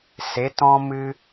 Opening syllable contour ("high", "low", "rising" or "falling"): rising